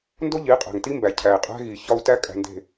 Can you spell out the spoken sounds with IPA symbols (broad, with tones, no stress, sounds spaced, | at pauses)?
n d o˦ ʎ i˨˦ qʼ æ̤˨ ŋ t i˦ m b æ˨ cʰ æ˨ i̯ qʼ æ̤˦ ɣ i˨ ç ɒ˦ u̯ t æ˦ kʼ æ̤˨ n d e̤˨